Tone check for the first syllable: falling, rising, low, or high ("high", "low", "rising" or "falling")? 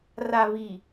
low